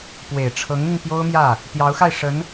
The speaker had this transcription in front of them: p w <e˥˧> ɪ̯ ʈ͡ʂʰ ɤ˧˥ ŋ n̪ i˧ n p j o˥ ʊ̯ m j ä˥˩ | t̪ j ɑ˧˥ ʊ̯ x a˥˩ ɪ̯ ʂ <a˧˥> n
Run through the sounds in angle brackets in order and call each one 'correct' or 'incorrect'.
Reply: incorrect: e˨˩, incorrect: ə˧˥

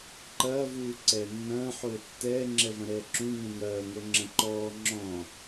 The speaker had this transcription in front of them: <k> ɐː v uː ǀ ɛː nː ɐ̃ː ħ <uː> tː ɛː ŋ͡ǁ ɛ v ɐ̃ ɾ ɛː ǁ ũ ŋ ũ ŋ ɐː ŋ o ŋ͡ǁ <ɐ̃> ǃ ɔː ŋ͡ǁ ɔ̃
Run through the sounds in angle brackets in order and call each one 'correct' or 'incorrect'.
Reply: incorrect: ǃ, incorrect: oː, correct

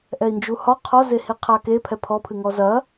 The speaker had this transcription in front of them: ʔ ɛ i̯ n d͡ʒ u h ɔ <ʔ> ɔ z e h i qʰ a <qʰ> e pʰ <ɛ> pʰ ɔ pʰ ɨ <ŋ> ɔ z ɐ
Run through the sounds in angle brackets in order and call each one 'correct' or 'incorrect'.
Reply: incorrect: qʰ, incorrect: k, correct, correct

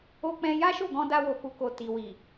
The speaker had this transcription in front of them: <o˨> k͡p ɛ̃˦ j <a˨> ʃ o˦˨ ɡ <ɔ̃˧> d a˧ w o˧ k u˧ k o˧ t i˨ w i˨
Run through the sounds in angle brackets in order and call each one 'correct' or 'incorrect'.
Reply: incorrect: o˦, incorrect: a˦, correct

